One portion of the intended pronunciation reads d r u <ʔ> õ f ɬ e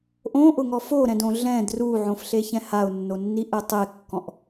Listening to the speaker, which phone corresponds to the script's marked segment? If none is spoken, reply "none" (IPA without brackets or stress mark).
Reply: ʕ